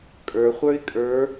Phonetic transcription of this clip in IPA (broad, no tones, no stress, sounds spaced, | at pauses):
kʼ ə˞ χʷ ə˞ ɪ̯ kʼ ə˞